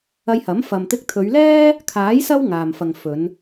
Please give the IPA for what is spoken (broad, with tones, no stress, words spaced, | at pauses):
ɐ˧jhɐ˨˥m fɐ˨mt̪ɪ˧k̚t̪ʰɵ˨˧ɥlɛː˥ | kʰaː˨˥j sɐ˥wŋaː˨mfɐ˨ŋ fɵ˨˧n